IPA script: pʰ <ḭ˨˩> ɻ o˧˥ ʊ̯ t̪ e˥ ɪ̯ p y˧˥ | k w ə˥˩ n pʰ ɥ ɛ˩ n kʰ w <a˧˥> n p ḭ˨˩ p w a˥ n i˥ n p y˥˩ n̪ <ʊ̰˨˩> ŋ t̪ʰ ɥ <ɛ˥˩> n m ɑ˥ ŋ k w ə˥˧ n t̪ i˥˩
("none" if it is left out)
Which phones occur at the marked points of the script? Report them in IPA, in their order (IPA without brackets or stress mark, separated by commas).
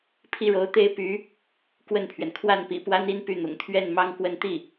i˥˩, a˥˩, ʊ̰˨˩, ɛ˥˩